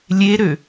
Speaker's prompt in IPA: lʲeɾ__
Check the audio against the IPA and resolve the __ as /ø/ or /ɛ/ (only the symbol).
ø